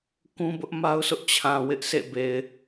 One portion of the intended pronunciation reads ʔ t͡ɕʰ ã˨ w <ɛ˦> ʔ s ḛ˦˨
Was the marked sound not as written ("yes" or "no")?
yes